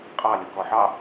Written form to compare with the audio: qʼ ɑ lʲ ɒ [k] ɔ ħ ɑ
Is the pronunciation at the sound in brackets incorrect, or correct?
correct